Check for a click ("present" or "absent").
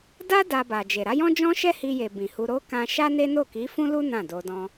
absent